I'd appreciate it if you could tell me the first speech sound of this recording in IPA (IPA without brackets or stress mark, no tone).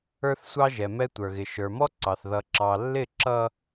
ə˞